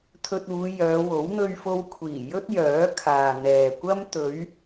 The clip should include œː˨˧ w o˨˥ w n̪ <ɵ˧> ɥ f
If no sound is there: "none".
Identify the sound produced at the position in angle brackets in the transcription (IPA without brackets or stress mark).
ɵ˧